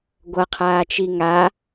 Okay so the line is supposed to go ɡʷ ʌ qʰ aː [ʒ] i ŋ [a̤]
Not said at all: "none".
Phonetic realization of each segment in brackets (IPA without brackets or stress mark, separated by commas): t͡ʃ, a